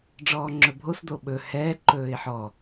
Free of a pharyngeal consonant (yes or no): no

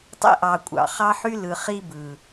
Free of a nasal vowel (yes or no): yes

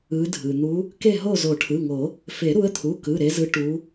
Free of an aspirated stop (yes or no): no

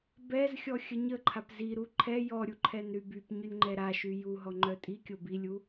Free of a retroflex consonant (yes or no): yes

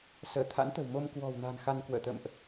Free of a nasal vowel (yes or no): yes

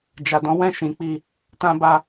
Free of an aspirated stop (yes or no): yes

